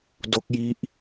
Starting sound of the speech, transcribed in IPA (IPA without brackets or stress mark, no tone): d